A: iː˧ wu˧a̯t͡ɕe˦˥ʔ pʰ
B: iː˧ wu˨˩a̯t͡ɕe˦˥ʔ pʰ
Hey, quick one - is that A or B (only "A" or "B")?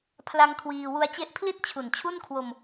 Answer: A